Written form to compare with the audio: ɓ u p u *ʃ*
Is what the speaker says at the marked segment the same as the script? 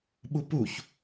no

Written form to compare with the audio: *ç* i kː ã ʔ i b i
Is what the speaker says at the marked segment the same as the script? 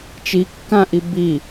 no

